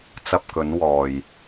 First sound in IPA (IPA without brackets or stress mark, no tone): t͡s